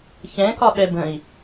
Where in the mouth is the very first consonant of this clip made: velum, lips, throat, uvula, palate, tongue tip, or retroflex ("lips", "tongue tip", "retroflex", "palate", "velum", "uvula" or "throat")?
palate